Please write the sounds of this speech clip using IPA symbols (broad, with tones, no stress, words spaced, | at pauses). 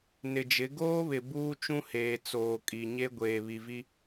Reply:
nɪ˨d͡ʒɪ˨˦ ɡoː˦βɪ˨ buː˦t͡ʃũ˦heː˨ t͡soː˨kʼi˨ ɲe˦ ɡʷeː˨βi˨vi˦